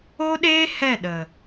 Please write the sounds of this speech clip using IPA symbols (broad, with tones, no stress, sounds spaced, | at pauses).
o˦ ɗ eː˦ h ɛ˦˨ ɗ ə˨